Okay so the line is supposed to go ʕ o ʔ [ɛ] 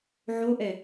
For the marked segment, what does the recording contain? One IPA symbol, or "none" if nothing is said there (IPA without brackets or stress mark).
ɛ